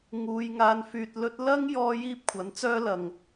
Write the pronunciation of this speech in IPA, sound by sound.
ŋuː˧j ŋaː˧nfyː˧t̚lɵ˥t̚ lɐ˥ŋ jɔː˥jiː˥p̚kʷʰɐ˨˥nt͡sœː˥ lɐ˨ŋ

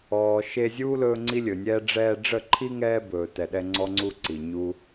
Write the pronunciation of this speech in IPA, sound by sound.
ɔː˨ʃe˧zʲu˦ lɵː˦ŋ͡ǀi˦lʲɵ˨nʲɛː˦ ɖ͡ʐɛː˧ɖ͡ʐə˦˨ǃʰi˦ ŋɛː˦bɵː˨tɛ˨ɗɛ˧ ŋ͡ǀɔ˦ŋ͡ǀu˦ ǀi˨ɲu˦

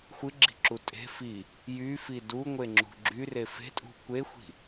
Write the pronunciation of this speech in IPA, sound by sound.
xʷɨɡ͡ǁi̤ǁu tʼe̤ fi | jyfi duŋʷeŋ͡ǁṳ ɡ͡ǁyre fe̤tʼṳ kʷexʷi̤

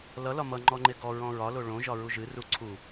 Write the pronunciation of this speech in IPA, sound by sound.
lʌlɒ mʌŋ͡ǃɔŋ͡ǃe ɡɔɹɔ̃ ɹɒlo ɭõʒɒɹu ʒɨru ǀʰu

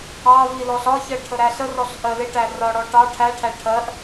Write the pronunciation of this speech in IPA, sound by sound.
ɑvi lɔɬɒçɜ ʈʰəɾæɬərɔɬ ʔɜlɪʈæ rɒɽɔ ʈɑ ʈʰæʈʰæ ʈʰɜʔ

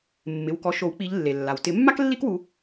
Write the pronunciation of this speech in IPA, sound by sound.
mːɪ˩˧˩wkɔ˨˦ʃo˨˩˦wk͡pi˨˦ʎ lːe˩lːa˩w tɪ˨˩˦mːa˥k lːi˥kwu˨˦

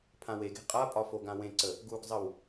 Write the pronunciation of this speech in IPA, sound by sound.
pʰãweɡe̤ qʼapʼɒ foɡãwẽǀə | ɡuɡzˤəw

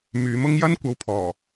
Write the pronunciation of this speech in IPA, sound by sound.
myː˨˧mʊ˥ŋ jɐ˥nkʷɐ˨˧wpʰɔː˨˩

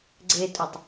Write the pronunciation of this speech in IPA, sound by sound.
ɡ͡ǀetʼɵtˤ

